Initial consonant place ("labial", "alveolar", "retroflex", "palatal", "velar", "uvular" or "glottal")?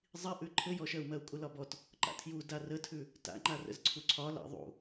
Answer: alveolar